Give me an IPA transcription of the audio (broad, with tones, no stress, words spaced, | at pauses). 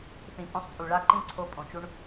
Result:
θĩ˨˦pʼõ˧sˤt͡sʼu˨ ɭa˦ǃĩ˦˨ǀʰo˧ pʼõ˨t͡ʃu˦ɳ